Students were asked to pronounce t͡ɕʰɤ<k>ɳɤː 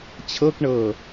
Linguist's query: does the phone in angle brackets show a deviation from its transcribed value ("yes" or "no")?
no